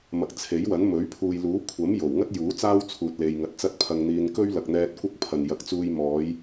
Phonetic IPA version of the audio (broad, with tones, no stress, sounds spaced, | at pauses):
m ɐ˨ k̚ t͡sʰ e˨˥ j w ɐ˨˥ n m ɵ˨˥ ɥ pʰ uː˨ j l uː˨˥ kʷʰ ɐ˨˥ m j o˨˩ w ŋ ɐ˥ t̚ j uː˨˥ t͡s aː˥ w t͡sʰ uː˨ t̚ l e˨ j ŋ ɐ˨ t̚ t͡s ɐ˥ t̚ pʰ ɐ˧ ŋ n̪ iː˧ n k ɵ˥ ɥ l ɐ˨ k̚ n̪ ɛː˧ t̚ kʷ ɐ˥ k̚ pʰ ɐ˨ n j ɐ˨˥ k̚ t͡s uː˧ j m ɔː˨˧ j